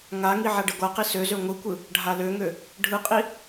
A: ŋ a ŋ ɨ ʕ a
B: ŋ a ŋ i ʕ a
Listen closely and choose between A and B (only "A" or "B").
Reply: B